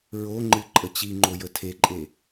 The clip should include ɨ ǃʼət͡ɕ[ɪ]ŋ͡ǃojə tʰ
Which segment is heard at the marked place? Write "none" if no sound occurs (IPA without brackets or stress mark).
i